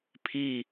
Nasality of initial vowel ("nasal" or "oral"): oral